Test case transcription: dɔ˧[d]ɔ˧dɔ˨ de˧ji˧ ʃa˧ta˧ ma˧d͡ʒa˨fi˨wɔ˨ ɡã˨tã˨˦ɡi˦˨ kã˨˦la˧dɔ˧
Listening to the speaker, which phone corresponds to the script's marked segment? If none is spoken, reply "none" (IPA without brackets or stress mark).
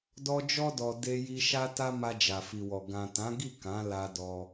d͡ʒ